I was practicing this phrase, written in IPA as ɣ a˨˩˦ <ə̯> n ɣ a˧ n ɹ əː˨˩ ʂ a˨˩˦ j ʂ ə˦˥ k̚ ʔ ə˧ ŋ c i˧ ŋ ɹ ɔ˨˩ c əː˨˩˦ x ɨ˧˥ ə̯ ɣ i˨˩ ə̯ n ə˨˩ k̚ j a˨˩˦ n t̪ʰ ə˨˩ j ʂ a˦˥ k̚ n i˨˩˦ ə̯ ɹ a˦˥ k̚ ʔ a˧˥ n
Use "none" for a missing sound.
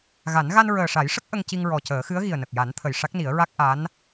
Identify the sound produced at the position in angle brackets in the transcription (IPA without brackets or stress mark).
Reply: none